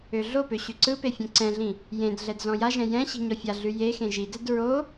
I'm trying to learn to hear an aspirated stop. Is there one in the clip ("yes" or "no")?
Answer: no